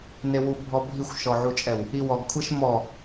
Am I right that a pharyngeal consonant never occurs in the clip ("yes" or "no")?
no